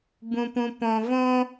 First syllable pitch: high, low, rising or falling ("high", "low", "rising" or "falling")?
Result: low